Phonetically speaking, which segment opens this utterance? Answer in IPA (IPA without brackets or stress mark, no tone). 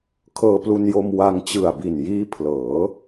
kʰ